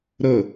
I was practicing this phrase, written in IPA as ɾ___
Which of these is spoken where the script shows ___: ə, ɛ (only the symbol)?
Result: ə